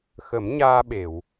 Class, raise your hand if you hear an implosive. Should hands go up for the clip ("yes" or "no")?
yes